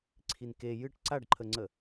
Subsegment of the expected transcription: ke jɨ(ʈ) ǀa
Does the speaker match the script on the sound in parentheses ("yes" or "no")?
yes